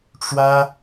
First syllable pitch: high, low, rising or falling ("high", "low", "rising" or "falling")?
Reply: high